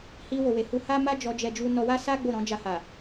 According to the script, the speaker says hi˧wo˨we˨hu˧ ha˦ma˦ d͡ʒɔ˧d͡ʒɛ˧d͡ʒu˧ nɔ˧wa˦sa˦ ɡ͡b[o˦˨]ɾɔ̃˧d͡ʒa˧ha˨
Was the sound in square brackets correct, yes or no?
yes